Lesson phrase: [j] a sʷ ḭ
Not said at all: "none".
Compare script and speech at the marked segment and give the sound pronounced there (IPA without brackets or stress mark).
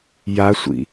j